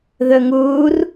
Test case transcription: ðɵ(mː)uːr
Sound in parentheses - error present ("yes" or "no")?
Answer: yes